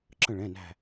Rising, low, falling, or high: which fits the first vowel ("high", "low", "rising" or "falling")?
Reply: falling